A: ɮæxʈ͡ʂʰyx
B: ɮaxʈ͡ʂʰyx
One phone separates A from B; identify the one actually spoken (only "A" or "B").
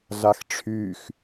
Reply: B